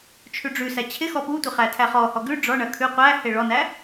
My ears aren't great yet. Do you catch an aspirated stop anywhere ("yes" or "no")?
yes